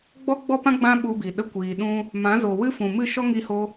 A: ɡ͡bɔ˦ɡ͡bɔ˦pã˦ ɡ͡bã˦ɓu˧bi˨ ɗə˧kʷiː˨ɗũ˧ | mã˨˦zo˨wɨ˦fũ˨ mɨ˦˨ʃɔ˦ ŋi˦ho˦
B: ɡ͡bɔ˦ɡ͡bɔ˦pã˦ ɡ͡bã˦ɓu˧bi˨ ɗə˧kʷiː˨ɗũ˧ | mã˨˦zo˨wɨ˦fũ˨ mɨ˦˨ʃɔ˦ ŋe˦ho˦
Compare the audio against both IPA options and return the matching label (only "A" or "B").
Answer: A